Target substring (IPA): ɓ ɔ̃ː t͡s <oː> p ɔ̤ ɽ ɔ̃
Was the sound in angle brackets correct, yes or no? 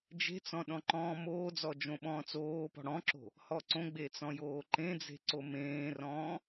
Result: yes